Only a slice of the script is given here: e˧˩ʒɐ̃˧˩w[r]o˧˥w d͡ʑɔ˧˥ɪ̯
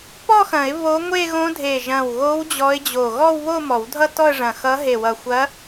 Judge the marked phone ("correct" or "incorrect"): incorrect